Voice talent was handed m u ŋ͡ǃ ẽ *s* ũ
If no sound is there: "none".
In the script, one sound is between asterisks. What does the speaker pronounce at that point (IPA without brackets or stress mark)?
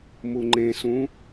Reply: s